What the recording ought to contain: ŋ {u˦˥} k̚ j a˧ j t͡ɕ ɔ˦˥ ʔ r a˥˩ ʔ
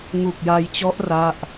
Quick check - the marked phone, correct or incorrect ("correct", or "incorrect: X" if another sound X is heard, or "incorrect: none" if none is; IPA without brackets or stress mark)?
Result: incorrect: u˨˩